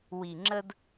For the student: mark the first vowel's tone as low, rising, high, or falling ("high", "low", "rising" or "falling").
low